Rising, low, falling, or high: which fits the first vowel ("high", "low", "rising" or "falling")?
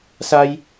high